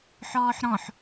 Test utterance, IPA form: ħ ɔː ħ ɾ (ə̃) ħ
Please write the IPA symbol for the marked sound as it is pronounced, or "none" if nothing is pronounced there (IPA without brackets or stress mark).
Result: ɔ̃